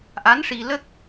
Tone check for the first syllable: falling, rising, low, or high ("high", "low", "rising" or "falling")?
rising